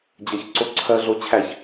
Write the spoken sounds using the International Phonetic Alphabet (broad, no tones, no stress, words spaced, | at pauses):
d͡ʑɐçǀo ǀʰɜɮo t͡ɕʰæç